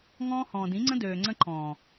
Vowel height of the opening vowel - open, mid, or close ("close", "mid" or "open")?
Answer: mid